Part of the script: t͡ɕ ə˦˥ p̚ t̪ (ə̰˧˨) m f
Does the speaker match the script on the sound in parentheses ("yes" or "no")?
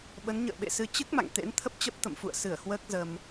yes